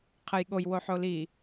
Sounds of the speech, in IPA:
qʰəjɠoj woħoli

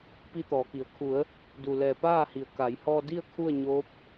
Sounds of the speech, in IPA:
pi˧t̪ɔː˩˧ki˩ə̯ kʰu˩˧ə̯ | du˧˩lɛː˧˩ paː˥˨hi˩˧ə̯ ka˩˧j hɔː˧di˥˨ə̯ kʰu˥˨ə̯ɲoː˧˥p̚

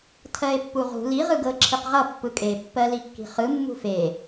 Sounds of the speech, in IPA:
tʰɜe̯pːuʁṳ li ʁɯɡɤ ǁʰiqʁʌ pːɯkʼe pːɜlikːi̤χɯ mːṳfe

